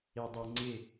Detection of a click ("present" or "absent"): present